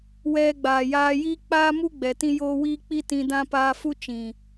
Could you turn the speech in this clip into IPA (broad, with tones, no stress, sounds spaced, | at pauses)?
w ɛ˧ ɡ͡b aː˨ j aː˧ j i˦ k͡p aː˦ m u˦ ɡ͡b ɛ˨ t ĩ˦ j oː˦ w iː˦ k͡p i˦ t ĩ˧ d ã˦ p aː˧ f u˦ t͡ʃ ĩ˨